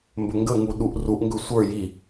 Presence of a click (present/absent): absent